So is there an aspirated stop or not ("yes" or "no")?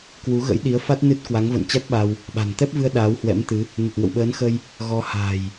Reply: no